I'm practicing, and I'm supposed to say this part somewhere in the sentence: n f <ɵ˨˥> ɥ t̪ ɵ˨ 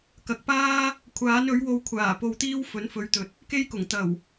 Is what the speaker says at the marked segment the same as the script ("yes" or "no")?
yes